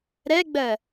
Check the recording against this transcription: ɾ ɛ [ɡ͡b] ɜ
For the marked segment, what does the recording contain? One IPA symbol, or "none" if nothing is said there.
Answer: ɡ͡b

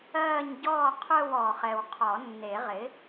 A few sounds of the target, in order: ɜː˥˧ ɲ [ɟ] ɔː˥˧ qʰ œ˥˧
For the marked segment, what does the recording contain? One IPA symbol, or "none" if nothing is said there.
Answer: ɟ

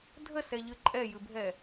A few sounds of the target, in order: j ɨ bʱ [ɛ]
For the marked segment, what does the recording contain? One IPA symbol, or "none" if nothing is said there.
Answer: ɛ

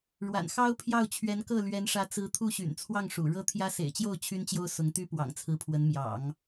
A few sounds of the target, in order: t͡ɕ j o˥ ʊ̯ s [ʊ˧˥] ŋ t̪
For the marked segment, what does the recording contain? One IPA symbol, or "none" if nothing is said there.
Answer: ʊ˧˥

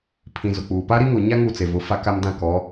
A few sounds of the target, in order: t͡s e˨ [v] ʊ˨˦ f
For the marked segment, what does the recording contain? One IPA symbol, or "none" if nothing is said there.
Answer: v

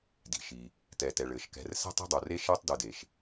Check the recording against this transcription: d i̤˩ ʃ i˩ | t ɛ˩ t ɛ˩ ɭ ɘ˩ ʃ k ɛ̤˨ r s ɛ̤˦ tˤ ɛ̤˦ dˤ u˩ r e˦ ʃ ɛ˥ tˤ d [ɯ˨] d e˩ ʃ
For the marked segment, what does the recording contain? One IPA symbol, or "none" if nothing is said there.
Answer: ɯ˨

